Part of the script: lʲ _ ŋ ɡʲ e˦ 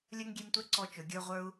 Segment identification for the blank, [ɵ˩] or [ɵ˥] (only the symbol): ɵ˥